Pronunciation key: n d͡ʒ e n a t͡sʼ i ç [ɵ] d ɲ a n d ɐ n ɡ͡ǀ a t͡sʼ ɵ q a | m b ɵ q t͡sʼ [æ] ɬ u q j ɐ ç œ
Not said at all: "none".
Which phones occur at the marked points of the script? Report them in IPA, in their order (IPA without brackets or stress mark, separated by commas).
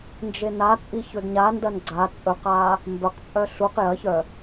ɵ, œ